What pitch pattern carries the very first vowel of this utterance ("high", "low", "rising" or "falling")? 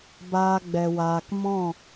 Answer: high